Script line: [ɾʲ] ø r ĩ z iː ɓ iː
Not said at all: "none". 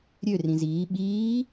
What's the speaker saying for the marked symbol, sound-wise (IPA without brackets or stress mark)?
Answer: ɾʲ